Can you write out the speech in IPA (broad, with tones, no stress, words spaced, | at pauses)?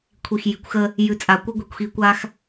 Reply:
kʷʰi˨xji˨kʷxə˦ | jʉ˨˦t͡sʼa˨kʷə˦ɡʷi˨kʷ xi˦kʷa˦x